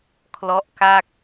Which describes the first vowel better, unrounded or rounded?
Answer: rounded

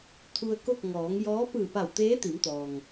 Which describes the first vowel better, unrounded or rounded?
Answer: rounded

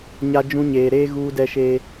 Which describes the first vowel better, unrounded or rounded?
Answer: unrounded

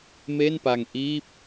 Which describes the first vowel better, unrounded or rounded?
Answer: unrounded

